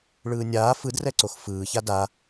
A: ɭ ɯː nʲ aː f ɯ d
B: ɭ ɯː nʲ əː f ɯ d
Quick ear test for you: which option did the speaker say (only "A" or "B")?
A